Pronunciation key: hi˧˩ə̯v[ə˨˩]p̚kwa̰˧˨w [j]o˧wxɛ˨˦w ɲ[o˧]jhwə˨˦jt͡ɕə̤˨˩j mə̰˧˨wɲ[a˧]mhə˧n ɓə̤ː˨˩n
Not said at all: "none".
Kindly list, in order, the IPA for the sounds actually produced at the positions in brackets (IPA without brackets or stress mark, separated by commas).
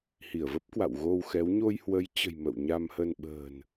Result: ə˦˥, ɣ, o˧, a˧